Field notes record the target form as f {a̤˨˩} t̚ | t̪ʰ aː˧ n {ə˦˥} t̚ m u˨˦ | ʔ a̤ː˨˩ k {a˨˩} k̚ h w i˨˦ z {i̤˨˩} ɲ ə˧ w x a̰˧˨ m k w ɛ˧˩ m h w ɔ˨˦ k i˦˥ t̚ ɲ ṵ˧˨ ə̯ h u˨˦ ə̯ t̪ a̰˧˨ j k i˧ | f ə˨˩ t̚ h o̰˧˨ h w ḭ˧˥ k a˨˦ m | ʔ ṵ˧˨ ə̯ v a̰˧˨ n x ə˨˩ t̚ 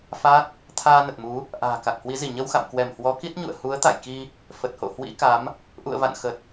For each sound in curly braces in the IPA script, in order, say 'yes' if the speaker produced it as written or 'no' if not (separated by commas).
no, no, yes, no